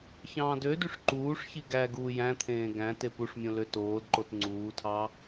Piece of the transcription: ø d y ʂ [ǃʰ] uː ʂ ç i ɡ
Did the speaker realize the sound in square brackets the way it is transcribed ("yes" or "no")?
no